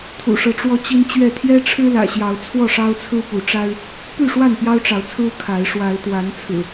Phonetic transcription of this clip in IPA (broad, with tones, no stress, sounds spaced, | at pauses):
t̪ʰ ṵ˨˩ ʂ ɤ˨˦ ʈ͡ʂ w ɔ˦ t͡ɕ i˦ n t͡ɕ ɥ ɛ˥˨ t̪ʰ j ɛ˦ ʈ͡ʂʰ ɻ̩˦ l ä̰˨˩ ɕ j ɑ˨˦ ʊ̯ t͡sʰ w ɔ˥˨ ʂ ɑ˦ ʊ̯ t͡sʰ ɹ̩˦ p u˨˦ ʈ͡ʂ a˦ ɪ̯ | p y˥˨ ʂ w a˥˨ n p j ɑ˦ ʊ̯ ʈ͡ʂ ɑ˨˦ ʊ̯ t͡sʰ ɹ̩˦ kʰ a˨˦ ɪ̯ ʂ w a˨˦ ɪ̯ t̪ w a˨˦ n t͡sʰ ɹ̩˨˩